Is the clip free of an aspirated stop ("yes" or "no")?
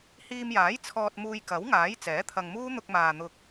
no